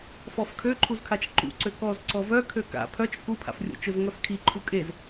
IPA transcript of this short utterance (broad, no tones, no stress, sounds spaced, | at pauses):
f ɔ f kʰ ø ǃʰ u z kʰ a t͡ʃ ǃ ṵ ǀ ø k ɔ z ǀ ɔ v œ kʰ ø k a̰ pʰ œ t͡ʃ k u pʰ a̰ f rʲ o̰ t͡ʃ ʊ z ŋ œ f kʰ i ǃʰ u kʼ e z